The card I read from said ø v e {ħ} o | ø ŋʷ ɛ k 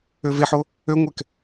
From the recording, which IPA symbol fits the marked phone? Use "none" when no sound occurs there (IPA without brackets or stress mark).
ħ